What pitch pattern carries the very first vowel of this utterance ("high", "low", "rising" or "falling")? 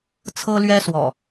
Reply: high